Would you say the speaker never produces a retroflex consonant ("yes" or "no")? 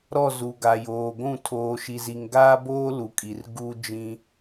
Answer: yes